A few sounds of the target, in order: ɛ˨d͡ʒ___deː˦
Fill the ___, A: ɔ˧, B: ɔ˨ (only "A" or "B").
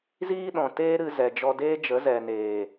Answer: A